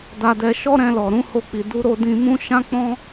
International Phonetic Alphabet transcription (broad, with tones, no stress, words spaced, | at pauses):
da˧dɛ˧ ʃɔ˦ɾɛ̃˧lɔ˨ɾũ˨˦ ho˦˨k͡pi˨ du˧ ɾo˧dĩ˧mũ˦ ʃã˦k͡pɔ̃˦